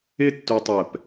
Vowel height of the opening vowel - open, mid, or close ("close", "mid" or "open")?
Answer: close